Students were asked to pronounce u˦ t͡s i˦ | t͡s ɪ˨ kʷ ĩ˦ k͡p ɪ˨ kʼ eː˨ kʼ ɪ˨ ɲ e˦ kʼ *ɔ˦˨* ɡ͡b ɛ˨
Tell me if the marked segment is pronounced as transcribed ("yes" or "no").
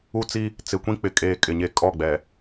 yes